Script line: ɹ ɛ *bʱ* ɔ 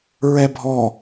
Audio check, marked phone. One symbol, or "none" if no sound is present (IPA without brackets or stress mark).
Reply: bʱ